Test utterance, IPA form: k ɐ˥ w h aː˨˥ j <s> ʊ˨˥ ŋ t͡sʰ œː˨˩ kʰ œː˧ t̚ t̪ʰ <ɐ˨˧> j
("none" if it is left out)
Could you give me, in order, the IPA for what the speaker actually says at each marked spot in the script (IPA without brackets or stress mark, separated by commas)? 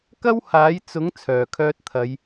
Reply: t͡s, ɐ˨˧